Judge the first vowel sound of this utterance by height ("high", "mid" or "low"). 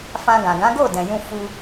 low